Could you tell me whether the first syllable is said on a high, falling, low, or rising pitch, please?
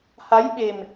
rising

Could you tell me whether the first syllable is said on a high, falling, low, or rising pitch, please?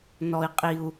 low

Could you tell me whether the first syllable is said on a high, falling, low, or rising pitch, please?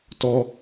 high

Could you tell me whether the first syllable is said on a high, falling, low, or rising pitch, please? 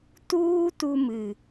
high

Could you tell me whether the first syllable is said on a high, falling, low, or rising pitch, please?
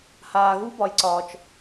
low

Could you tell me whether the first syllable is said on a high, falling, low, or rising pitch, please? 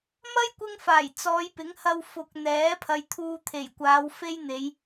high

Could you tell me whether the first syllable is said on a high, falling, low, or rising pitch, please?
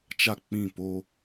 falling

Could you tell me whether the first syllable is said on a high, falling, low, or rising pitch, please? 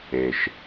low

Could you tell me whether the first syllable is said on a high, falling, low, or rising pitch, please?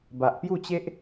low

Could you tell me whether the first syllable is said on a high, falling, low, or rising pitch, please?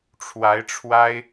rising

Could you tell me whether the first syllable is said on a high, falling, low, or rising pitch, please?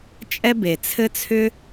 high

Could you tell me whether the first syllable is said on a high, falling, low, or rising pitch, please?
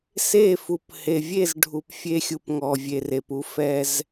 falling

